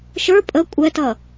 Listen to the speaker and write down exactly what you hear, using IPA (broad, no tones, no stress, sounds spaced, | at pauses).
ʃ ə˞ pʼ ə kʷʼ ɛ t ʌ